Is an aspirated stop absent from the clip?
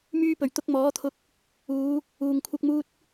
no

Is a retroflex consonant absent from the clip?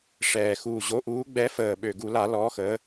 no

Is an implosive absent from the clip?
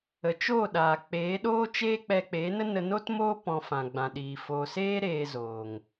no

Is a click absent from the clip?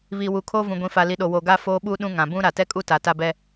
yes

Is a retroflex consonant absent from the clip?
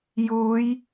yes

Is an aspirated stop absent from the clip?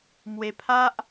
no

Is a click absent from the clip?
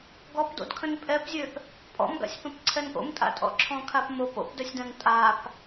no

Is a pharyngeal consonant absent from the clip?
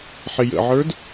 no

